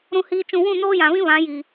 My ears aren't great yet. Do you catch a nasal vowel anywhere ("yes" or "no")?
yes